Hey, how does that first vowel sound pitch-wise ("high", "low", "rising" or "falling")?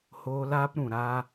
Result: high